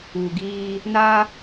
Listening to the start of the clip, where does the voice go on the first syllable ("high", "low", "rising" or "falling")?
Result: low